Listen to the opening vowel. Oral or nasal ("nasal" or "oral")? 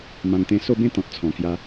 nasal